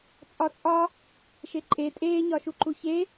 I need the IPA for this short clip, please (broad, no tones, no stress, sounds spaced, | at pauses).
t͡sʼ ɒ t͡sʼ ɒ | ʃ e ǃʼ e tʼ eː ɲ ɒ ʃ u ǃ u ç e